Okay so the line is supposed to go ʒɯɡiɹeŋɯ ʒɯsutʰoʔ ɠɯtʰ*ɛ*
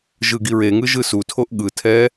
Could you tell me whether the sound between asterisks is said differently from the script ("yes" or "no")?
no